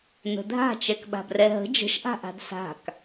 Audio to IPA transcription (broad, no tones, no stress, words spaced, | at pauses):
n̪ə̤dʱa̤ t͡ʃɛkɓa̤brɛɦə̤ d͡ʒə̤ʃʔa̤ʔa̤d sa̤k